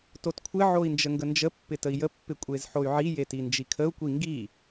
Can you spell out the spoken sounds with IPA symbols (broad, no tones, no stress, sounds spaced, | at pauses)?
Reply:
t o t kʷʰ ɪ ʕ o i̯ n d͡ʒ ə ŋ ɡ ə n d͡ʒ ə pː ɪ t ə i̯ j ə pː ɪ kʷʼ e z ħ o y̯ ʕ i j e t i n d͡ʒ i kʰ ə u̯ kʷ i ŋ ɡ i